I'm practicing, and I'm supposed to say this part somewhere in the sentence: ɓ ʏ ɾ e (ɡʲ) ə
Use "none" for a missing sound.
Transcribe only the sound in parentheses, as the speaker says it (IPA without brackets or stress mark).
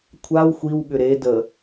d